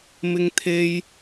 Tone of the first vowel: high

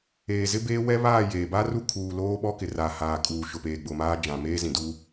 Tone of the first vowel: low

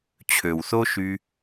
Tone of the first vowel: low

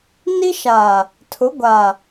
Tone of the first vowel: high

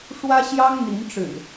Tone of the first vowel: high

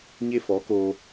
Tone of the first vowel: high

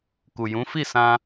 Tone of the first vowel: low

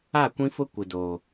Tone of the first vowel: falling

